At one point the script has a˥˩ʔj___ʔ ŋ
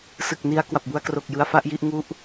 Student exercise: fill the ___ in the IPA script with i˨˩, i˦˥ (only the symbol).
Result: i˦˥